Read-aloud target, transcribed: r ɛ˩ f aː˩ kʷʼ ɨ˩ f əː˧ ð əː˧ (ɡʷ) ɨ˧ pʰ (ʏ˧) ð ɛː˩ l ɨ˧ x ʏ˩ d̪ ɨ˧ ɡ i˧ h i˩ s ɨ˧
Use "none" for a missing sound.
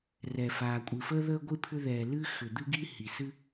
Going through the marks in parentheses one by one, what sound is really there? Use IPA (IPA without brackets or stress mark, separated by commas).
ɡʷ, ʏ˧